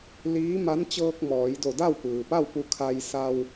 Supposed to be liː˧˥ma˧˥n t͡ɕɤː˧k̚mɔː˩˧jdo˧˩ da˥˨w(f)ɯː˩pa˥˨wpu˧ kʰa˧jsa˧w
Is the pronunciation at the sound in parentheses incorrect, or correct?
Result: incorrect